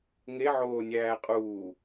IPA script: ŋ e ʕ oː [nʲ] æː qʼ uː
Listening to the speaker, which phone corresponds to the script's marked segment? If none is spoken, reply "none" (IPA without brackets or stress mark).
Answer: nʲ